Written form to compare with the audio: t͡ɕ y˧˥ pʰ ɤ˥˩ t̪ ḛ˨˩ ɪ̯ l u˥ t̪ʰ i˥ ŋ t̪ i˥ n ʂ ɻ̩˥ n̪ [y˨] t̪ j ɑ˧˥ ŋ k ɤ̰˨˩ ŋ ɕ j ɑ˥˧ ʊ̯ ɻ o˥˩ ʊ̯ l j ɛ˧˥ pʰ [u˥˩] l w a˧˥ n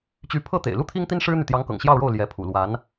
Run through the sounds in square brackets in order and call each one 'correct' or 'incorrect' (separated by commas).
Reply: correct, incorrect